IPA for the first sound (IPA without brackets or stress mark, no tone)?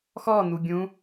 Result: x